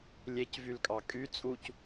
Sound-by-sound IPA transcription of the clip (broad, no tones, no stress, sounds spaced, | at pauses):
lʲ e c v y l kʼ ɑ kʼ y t͡sʼ u c